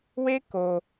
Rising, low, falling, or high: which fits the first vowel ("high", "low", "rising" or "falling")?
high